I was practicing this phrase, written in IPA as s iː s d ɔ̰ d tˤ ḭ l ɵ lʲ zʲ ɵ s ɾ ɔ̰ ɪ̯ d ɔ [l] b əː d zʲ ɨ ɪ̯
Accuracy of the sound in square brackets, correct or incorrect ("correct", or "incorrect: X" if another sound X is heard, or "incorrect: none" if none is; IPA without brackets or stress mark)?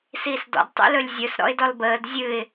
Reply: correct